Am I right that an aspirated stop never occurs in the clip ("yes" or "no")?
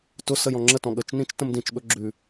yes